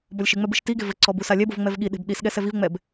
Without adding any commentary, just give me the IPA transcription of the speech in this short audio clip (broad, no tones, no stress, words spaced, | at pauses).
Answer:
bɔlʲʃɨŋ͡mɛ bɨʃtiɡe vɘǀɔ busalʲɛbov ŋ͡mɛvɠiɗe̤b ɗisɠɛ sɛvivŋ͡mɛb